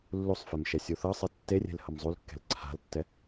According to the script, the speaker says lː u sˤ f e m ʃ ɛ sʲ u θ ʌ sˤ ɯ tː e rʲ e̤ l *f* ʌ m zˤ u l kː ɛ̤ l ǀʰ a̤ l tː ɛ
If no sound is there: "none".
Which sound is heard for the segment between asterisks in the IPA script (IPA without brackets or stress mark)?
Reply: h